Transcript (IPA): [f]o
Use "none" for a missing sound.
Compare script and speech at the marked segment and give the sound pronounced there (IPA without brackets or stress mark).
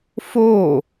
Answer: f